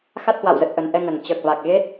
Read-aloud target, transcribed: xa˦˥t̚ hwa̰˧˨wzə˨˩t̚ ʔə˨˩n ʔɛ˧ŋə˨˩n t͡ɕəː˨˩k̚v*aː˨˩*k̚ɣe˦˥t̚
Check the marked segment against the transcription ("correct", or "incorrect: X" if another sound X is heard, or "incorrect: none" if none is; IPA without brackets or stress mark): incorrect: a˨˩